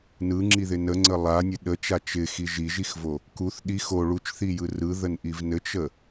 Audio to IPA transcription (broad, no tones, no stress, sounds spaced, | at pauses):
n ɯ ŋ͡ǁ i ð ɪ n ə ŋ͡ǀ ə lˠ a nʲ ɘ ɗ ə t͡ʃ a t͡ʃ ɪ x i ʒ i ʒ i x v o | k u θ ɗ i x o ɭ u t͡ʃ θ i j ɯ r ɯ ð ə n ʔ i v n ɘ t͡ʃ ə